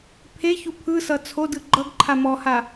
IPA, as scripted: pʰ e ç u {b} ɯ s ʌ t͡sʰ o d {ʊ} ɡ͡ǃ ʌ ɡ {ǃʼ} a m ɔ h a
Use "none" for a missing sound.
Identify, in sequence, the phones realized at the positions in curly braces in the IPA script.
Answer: pʰ, ɯ, ǃʰ

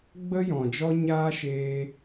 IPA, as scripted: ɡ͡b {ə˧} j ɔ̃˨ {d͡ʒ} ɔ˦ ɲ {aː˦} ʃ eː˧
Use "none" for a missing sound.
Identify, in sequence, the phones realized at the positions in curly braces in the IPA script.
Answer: ə˦, d͡ʒ, aː˦

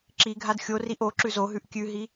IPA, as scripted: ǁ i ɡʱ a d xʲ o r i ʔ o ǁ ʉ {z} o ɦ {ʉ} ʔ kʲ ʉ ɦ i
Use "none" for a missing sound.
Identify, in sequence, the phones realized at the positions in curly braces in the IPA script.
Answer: z, ʉ

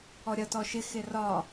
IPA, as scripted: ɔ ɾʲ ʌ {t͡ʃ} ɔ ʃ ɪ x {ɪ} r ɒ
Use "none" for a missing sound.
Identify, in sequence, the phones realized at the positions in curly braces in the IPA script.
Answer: t, ɪ

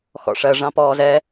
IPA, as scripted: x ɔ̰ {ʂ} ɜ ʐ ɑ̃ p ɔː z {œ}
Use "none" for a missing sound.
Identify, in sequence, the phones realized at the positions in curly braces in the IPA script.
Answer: ʂ, ɛ

